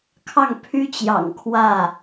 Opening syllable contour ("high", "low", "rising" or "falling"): falling